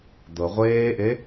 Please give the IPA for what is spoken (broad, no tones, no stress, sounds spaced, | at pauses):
d̪ ɤ ʁʷ eː ʔ e